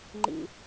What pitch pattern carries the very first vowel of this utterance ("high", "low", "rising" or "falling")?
low